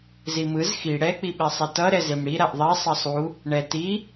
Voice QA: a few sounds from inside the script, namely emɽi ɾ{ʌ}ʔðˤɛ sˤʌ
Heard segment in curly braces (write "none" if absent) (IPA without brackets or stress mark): a